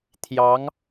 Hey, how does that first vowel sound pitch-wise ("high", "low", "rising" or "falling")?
rising